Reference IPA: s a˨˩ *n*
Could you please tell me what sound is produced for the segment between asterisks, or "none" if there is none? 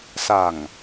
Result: ŋ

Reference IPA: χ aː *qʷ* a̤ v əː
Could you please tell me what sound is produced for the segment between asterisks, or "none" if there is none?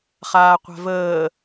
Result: qʷ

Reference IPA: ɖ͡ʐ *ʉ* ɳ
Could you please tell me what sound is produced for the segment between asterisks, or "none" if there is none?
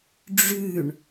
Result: ʉ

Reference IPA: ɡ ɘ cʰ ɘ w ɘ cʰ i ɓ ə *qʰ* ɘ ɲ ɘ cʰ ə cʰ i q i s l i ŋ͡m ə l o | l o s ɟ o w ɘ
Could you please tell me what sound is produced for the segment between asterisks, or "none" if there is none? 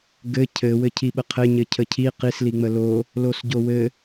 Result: qʰ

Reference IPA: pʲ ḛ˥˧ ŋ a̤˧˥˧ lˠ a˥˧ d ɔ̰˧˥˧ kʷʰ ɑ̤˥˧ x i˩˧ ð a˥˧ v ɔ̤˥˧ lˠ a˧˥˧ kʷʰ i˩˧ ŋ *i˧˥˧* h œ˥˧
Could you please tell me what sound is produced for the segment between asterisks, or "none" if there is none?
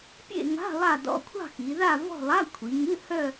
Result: ɨ˧˥˧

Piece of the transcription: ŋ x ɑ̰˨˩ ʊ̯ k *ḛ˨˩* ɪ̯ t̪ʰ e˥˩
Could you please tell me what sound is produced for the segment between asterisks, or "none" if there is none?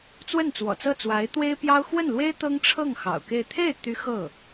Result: e˥˧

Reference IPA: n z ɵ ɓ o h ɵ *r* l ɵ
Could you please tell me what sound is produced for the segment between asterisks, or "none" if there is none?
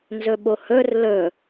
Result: r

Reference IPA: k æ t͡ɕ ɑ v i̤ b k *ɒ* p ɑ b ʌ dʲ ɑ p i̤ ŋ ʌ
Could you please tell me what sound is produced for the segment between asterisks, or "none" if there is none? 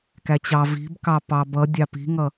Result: ɑ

